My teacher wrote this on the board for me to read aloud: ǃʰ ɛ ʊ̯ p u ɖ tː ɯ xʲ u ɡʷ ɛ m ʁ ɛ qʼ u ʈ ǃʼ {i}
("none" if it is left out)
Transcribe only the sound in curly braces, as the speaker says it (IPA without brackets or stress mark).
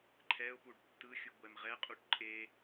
e